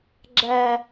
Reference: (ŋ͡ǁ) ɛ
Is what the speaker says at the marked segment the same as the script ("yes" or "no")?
no